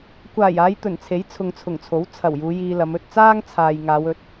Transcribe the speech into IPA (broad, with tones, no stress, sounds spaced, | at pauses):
kʷ aː˨˩ j aː˨˧ j t̪ ɵ˨˩ n t͡sʰ e˨˥ j t͡sʰ ʊ˨ ŋ t͡sʰ ʊ˨˩ ŋ t͡sʰ o˨˥ w t͡sʰ ɐ˨˩ w j uː˨˧ j iː˧ l ɐ˨˧ m ɵ˨ t̚ t͡s aː˥ ŋ t͡sʰ aː˨ j ŋ aː˨˧ w ɵ˨˥ t̚